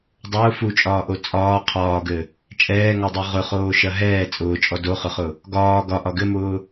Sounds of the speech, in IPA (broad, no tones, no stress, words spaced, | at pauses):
dˤʊː fut͡ʃʼɒːʔo t͡sʼɒː qʰɒːɡɘ | t͡ʃʼɛːŋɔdˤo ʁʊχoːʃɐ ɦɛː t͡sʼʊːt͡ʃʼɔ doχʊχʊ | ɡɒː ɡɒʔɒ ɡɘmʊː